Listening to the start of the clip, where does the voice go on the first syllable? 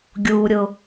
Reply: low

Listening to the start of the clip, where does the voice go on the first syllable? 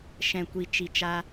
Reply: low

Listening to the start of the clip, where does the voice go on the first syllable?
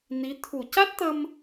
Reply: rising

